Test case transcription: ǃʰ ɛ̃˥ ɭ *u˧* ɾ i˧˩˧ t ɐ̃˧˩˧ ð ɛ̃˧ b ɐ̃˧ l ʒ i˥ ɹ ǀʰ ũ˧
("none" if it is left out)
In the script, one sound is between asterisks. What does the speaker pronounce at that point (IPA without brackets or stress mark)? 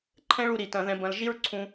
u˧